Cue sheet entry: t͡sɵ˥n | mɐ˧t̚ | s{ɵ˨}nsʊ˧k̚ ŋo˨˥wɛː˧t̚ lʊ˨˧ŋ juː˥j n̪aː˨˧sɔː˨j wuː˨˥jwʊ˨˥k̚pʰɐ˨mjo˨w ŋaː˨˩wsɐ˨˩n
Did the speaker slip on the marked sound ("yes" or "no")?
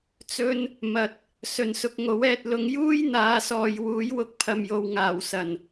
no